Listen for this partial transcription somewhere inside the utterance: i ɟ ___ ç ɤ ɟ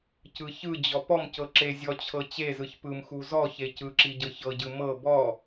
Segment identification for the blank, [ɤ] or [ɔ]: ɤ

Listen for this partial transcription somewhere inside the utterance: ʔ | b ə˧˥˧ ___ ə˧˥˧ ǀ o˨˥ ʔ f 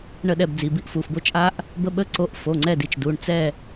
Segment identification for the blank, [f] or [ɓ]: ɓ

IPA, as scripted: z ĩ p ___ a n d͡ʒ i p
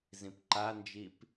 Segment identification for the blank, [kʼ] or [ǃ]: ǃ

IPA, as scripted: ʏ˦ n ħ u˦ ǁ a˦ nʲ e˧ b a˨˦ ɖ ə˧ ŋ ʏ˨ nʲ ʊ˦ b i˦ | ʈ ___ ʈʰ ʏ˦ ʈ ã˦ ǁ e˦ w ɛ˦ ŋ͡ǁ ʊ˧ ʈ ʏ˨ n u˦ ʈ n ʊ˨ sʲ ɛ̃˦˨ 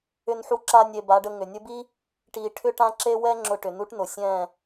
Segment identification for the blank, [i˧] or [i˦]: i˧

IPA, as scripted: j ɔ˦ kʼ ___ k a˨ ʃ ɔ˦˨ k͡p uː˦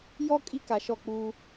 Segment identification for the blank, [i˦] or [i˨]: i˦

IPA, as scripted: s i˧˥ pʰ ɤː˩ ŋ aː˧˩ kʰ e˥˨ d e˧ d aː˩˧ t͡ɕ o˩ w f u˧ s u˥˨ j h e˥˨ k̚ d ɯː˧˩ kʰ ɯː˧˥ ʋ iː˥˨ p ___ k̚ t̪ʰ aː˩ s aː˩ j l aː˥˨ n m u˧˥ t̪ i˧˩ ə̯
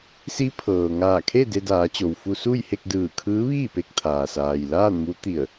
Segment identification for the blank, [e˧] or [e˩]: e˧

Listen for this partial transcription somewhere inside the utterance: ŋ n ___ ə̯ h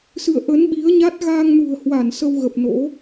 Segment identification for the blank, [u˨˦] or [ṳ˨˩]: ṳ˨˩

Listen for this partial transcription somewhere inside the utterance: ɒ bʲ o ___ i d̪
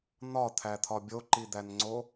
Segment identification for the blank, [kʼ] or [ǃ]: ǃ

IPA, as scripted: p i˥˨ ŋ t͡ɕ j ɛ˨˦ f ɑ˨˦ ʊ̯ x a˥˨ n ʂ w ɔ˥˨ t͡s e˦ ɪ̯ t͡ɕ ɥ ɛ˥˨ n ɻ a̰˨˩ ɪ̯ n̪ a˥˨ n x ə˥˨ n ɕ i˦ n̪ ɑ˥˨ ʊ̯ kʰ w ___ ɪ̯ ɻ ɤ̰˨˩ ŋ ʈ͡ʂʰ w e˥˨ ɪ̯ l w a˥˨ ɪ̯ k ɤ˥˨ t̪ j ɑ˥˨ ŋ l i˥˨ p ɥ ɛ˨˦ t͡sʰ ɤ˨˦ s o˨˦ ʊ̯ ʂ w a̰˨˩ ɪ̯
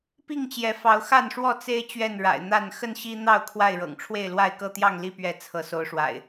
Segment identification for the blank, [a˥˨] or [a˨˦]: a˥˨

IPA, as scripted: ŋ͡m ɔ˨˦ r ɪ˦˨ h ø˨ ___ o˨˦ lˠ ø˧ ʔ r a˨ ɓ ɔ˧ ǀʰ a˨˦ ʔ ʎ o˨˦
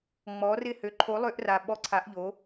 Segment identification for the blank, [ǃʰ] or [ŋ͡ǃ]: ǃʰ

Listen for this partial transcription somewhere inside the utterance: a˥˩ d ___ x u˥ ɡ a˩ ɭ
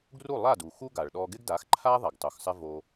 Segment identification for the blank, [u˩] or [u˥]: u˩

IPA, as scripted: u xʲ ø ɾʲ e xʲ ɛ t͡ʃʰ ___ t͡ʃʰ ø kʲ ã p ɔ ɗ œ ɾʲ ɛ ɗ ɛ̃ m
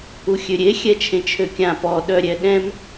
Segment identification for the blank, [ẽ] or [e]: ẽ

